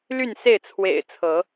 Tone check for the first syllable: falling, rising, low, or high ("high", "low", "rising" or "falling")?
falling